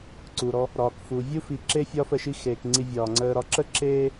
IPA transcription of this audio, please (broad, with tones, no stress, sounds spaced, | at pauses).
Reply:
ǀ u˩ ɾ ɔ˨ | ɾ ɒː˩ k f u˩ vʲ u˥ f i˨ ǁ e˥ fʲ ɒː˦ f ə˩ ʃ i˦ x eː˩ k ŋ͡ǀ i˨ vʲ ɒː˩ ŋ͡ǀ əː˨ ɾ ɒ˨ ǁ ə˥ ǁ eː˦